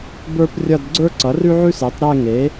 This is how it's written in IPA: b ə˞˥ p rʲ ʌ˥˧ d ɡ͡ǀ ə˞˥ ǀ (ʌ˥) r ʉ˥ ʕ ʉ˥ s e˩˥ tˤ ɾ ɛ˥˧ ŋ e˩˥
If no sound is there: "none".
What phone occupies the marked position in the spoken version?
ʌ˩˥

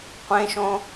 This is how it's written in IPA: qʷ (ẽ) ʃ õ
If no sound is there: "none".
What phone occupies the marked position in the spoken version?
ẽ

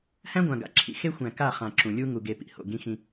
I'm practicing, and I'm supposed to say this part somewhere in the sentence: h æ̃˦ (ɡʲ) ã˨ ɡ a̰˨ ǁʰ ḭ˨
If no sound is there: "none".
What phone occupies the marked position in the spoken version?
ɡʷ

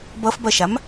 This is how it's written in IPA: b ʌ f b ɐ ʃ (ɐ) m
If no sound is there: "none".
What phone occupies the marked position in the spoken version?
a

